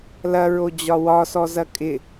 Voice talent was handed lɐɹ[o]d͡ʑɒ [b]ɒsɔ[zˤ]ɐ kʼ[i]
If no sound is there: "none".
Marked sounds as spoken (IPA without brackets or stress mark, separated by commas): o, w, z, ɪ